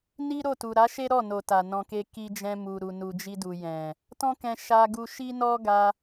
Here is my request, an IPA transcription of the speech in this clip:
n i˦ ɾ o˦˨ t u˨ ɾ a˨˦ ʃ e˦ ɾ ɔ˦˨ n o˨ t a˨ n ɔ̃˧ k e˦ k i˧ d͡ʒ ɛ̃˧ m u˨ ɾ u˨ n u˨ d͡ʒ i˧ d u˨ j ɛ̃˨ | t ɔ̃˦ k ɛ̃˧ ʃ a˧ ɡ u˧ ʃ i˦ n ɔ˦ ɡ a˧

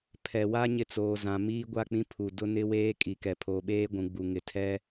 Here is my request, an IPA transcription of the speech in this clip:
pʰ ɛ˨ w a˦ ɲ ɪ˦ t͡s oː˨ z ã˨ m iː˦ ɡʷ a˦˨ k͡p ĩ˦ pʰ u˨ d ʊ˦ n ɪ˦ w eː˦ kʼ i˨ k ɛ˨ pʰ oː˨ ɓ eː˦ ɡʷ ũ˨ ɡ͡b u˨ ŋ ɪ˨ tʰ ɛ˦

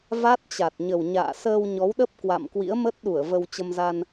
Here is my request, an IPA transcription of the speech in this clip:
v a˦˥ t̚ t͡ɕ a˨˩ t̚ ɲ ə˨˩ w ɲ a̰ː˧˨ s əː˧ w ɲ ɔ˨˦ w ɗ ə˦˥ p̚ k w a̰˧˨ m k w ḭ˧˥ ə̯ m ə˦˥ t̚ ɗ u˧˩ ə̯ v ə˧ w t͡ɕ ə˧ m z a˧ n

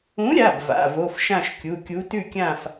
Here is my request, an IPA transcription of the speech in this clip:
ũ˨˥ ɾʲ a˩˧˩ b v a̰˩˧˩ v o˩˧˩ f ʃ ã˥˨ ʃ kʲ u˩˧˩ kʲ u˨˥ t ʉ˥˨ kʲ ã˥˨ f

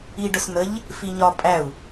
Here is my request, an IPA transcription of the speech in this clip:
i ɖ ʊ s n̪ ə ʎ | f i ɲ ɒ pʼ æ u̯

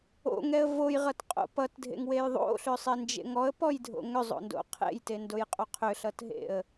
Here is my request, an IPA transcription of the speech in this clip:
o̰ ŋ ɛ ə̯ v o j ʁ ʌ t qʼ o̰ p ʌ t dʱ ḛ ŋ w e j ðˤ o̰ ɬ ʏ sˤ e n d͡ʒ ḛ ŋ ɔ ə̯ p ɔ j dʱ o̰ ŋ ʏ zˤ o̰ n d o̰ qʰ ḛ j t e n d o j qʼ o qʰ ʏ ɬ ʌ t ɦ ḛ ə̯

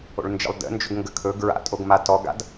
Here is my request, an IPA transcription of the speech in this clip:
o̰ ɭ n d͡ʒ ə̰ lˠ d ə̰ n d͡ʒ ɵ ɡ ŋ ɡ ə kʰ ɵ ɡ ɹ a̰ tʼ o ɡ m a t ɔ ɡ a̰ d

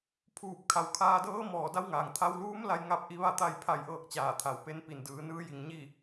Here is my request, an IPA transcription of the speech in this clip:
pʰ uː˧˩ p̚ kʰ a˩˧ w kʰ aː˧ d ɤː˧˥ m ɔː˧˩ d a˧˥ w ŋ aː˩ ŋ t̪ʰ a˧ w l uː˧˥ m l a˧ j ŋ a˧ p̚ ʔ i˧˥ ʋ a˥˨ t̪ a˥˨ j pʰ a˧ j ʔ ɤː˥˨ k̚ t͡ɕ aː˧˩ t̪ʰ a˩ w p e˧˥ n p i˩ n d ɯː˩˧ n ɯː˧˥ j i˩ ŋ ɲ i˥˨

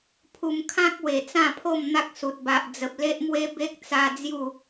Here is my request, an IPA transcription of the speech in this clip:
pʰ u˧ m kʰ ã˦ k̚ w e˨˩ t͡s ã˥˧ pʰ o˥˧ m n̪ a˦ k̚ s u˨ t̚ b a˨ ʔ d͡z ə˨ p̚ l e˦ ʔ m w e˦ b e˦ k̚ t͡s a˧ d͡z j u˥˧

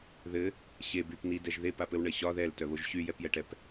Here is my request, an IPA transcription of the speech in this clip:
ð ɘ | ɕ e b y p n i d ɛ ʒ ð e p a p ɘ w ɳ ɘ ɕ ɒ ð ɛ l t œ β o ʒ ɕ y j ɛ p j ɛ ʈ ɛ p

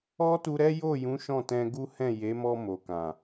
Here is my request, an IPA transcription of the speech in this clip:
ɔ˦ t u˧ ɾ ɛ˦ j o˦˨ j ũ˨˦ ʃ ɔ̃˦˨ t ɛ̃˧ ɡ u˦ h ɛ̃˦˨ j e˨˦ m ɔ˧ m o˨ k ã˨

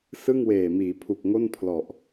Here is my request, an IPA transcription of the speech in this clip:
s ɯ˥˩ ŋ w eː˨˩ m iː˩˦ pʰ u˨˩ k̚ ŋ o˥˩ n pʰ l ɔ˨˩ ʔ

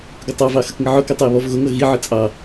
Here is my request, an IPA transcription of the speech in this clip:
ɡ ʊ tˤ ɑ v ɑ x ə k ŋ ə ʕ ʊ k ə tˤ ʌ e̯ β ɔ v ɣ ʊ ŋ ʌ ɣ i ʕ ə t͡sʼ ɑ

